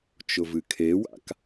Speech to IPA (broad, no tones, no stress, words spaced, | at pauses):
t͡ʃʊvɨkʰewa̰k